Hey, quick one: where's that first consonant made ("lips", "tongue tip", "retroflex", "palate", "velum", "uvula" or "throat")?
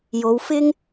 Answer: palate